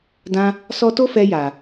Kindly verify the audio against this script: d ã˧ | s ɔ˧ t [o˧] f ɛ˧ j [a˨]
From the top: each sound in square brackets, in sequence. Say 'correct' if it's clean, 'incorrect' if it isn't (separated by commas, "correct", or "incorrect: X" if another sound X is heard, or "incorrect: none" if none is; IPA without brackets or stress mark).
incorrect: o˦, correct